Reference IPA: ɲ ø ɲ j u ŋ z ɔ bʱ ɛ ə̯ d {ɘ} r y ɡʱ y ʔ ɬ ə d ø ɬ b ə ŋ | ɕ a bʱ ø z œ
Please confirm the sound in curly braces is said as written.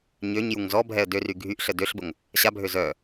no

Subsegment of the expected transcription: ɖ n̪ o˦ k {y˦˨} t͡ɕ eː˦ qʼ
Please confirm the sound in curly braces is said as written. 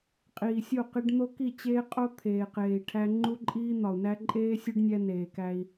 no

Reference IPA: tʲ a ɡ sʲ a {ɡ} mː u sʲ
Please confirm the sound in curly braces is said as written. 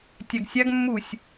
yes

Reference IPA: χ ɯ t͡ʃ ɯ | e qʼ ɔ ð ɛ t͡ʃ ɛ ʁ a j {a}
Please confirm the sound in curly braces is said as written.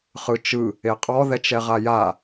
yes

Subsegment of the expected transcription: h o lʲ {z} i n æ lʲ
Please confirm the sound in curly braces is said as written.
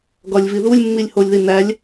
no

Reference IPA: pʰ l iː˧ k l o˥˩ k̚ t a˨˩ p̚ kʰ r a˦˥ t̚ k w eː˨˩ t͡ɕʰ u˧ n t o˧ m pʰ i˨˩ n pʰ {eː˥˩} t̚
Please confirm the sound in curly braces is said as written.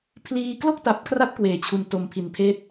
yes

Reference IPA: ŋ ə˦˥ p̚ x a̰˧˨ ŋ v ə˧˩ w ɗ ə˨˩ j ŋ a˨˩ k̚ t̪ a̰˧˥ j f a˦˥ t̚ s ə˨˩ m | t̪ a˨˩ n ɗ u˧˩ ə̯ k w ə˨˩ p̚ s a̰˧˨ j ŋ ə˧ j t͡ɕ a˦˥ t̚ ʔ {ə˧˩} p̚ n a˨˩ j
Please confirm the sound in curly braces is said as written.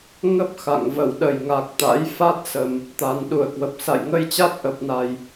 no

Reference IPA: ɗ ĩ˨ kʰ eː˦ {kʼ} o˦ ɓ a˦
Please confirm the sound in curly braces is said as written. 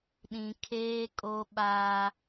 yes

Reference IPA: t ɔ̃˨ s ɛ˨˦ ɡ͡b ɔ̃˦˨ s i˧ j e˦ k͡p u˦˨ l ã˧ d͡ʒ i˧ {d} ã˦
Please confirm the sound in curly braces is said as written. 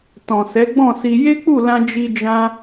no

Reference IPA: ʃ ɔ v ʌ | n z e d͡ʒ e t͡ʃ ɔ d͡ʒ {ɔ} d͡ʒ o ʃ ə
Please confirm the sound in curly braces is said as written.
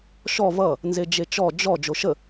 yes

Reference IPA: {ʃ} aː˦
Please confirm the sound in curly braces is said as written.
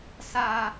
no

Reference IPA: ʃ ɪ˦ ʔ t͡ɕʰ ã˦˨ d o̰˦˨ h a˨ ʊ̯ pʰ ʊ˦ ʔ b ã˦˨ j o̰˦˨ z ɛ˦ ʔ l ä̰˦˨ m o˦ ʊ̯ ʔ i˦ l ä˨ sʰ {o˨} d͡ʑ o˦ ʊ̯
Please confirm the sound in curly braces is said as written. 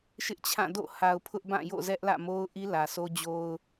no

